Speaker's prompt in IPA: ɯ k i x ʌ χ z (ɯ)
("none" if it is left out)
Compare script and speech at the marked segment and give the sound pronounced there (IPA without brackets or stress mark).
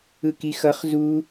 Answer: u